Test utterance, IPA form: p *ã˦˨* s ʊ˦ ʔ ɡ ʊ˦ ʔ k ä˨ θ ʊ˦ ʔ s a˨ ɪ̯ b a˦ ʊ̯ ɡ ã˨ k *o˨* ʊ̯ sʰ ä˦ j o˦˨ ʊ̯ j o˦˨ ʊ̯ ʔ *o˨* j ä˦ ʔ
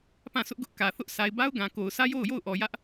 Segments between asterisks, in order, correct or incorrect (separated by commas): correct, correct, incorrect